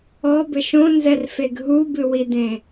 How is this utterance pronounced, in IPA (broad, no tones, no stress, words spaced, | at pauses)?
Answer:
ɔbɘʃ õnzɛrfeɡ ɦubɨwidẽ